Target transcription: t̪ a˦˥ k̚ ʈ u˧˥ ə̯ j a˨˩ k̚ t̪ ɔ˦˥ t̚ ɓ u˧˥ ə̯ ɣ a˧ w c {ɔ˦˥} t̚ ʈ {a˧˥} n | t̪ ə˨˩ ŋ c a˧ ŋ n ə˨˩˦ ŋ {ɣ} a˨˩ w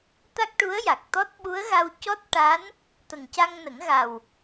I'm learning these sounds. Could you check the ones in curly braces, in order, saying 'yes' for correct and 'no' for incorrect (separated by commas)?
yes, yes, yes